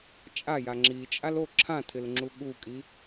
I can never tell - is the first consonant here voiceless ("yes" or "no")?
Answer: yes